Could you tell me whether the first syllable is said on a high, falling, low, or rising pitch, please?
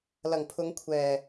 low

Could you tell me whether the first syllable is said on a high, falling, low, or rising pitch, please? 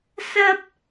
high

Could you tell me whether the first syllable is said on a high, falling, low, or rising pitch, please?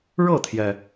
falling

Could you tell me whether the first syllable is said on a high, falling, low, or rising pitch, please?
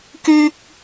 high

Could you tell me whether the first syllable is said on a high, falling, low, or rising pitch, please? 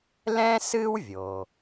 high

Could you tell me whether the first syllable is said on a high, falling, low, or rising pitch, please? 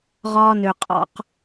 high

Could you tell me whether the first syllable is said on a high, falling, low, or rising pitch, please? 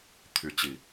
rising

